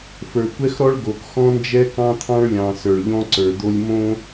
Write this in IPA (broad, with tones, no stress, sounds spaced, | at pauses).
f ə˞˨ kʷ ɛ˦ x ɾ ɔ˦ ɭ ɡ o˨ k x ɔ̃˦ n d͡ʒ ɛ˦ k ɑ̃˦ t̪ʰ ɑ̃˦ ɭ lʲ ɑ̃˨ s ə˞˨ ɭ ʎ ɔ̃˦ ǀ ə˞˨ d̪ o˦ lʲ m õ˦